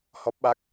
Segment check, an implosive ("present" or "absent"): present